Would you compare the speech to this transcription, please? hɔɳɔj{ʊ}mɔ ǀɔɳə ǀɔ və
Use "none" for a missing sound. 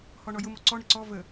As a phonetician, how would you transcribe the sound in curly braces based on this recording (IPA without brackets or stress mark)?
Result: ʊ